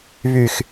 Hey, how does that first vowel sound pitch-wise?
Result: low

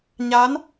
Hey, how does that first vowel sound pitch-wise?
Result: rising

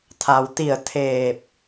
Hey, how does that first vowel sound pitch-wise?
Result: low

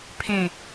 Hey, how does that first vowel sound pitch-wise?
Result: falling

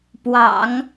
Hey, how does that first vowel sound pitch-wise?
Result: low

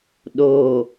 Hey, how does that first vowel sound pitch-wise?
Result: low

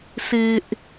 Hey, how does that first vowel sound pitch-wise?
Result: low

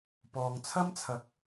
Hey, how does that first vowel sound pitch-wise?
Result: low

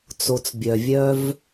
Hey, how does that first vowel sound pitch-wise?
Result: low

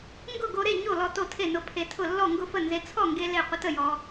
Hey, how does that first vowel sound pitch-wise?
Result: falling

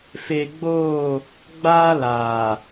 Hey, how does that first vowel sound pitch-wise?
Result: low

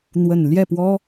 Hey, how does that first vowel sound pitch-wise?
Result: low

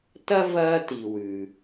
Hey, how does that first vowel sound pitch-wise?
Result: high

